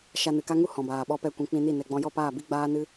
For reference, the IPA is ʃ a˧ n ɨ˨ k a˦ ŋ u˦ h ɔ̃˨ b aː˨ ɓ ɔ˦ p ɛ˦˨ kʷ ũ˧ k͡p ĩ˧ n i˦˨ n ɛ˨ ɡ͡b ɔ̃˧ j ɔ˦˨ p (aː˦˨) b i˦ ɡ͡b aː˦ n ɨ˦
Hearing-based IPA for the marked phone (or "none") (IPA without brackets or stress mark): aː˦˨